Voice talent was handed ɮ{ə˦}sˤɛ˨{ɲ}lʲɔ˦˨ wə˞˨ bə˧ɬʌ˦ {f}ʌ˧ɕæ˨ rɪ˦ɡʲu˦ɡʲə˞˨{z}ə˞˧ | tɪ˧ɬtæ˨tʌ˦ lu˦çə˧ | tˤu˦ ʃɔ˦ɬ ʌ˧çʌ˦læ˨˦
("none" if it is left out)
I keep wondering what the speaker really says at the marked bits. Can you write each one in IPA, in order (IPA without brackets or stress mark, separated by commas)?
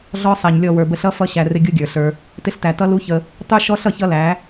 ɔ˦, ɲ, f, ɬ